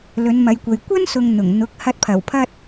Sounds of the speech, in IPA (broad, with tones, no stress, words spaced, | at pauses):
lɵ˨˧nmɐ˨˧jkʷɐ˨j kʷɐ˥nsʊ˨ŋ n̪ʊ˨˩ŋn̪ʊ˨˥k̚ hɐ˧t̚pʰɐ˨˩wpʰɐ˥t̚